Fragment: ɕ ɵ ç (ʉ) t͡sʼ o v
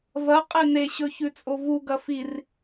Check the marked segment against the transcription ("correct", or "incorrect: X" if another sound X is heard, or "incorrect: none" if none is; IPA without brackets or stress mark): correct